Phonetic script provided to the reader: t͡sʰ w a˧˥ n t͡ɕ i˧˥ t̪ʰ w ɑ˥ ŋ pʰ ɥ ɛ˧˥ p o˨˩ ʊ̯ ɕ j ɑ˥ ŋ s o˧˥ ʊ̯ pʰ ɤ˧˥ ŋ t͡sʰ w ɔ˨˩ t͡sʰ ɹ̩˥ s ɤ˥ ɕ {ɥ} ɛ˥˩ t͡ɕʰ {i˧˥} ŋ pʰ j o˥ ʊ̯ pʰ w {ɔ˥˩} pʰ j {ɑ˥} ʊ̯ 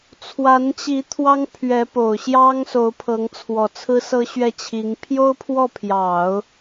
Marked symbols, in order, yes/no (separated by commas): yes, yes, yes, no